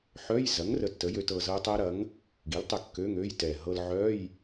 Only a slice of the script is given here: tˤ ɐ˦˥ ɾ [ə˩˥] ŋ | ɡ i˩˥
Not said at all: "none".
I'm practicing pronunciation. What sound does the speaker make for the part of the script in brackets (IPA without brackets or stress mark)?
ɐ˩˥